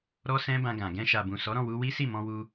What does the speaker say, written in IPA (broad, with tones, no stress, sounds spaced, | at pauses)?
ɾ ɔ˦ s ɛ̃˦ b ã˧ ɡ ã˨ ɡ ɛ̃˧ ʃ a˨ b ũ˨ s ɔ˨˦ ɾ ɔ̃˦˨ w u˧ w i˦ s i˦˨ m ɔ̃˧ w u˧